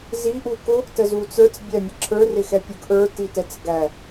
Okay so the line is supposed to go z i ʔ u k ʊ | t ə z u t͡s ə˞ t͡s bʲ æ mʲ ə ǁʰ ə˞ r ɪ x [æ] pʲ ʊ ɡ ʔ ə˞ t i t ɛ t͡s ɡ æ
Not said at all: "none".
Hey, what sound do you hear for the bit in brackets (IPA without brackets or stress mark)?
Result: ɛ